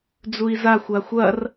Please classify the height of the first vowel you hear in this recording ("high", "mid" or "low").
high